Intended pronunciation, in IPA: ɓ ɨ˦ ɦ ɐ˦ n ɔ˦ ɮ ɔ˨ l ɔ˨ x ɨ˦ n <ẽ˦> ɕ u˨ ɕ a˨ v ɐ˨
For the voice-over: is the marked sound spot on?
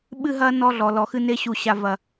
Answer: no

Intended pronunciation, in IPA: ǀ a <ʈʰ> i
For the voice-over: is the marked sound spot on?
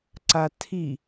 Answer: no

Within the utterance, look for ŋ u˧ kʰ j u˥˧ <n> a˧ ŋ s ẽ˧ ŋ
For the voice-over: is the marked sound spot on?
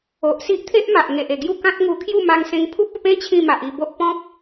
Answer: no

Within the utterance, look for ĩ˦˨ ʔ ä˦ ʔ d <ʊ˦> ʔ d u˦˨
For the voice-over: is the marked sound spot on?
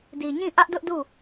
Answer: yes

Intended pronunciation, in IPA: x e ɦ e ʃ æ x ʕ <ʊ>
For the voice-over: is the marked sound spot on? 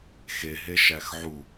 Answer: no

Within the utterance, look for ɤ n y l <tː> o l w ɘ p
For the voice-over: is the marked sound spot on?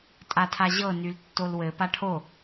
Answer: yes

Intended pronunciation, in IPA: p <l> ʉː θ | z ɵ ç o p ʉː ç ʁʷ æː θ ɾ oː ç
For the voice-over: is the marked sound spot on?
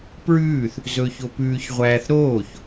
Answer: no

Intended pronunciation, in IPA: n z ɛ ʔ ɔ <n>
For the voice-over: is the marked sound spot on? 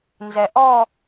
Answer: no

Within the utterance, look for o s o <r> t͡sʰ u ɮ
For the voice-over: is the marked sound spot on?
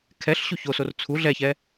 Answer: yes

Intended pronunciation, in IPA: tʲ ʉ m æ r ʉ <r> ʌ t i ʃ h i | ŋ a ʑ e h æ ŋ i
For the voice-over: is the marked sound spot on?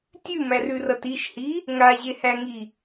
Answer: yes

